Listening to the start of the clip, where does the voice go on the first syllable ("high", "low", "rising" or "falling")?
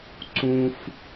high